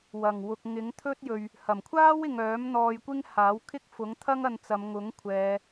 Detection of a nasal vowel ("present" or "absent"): absent